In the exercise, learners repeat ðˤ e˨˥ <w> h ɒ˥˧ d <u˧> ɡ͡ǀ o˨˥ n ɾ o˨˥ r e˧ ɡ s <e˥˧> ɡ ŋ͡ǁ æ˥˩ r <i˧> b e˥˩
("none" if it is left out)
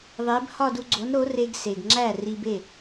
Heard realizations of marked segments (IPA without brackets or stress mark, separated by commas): b, u˧, e˩, i˧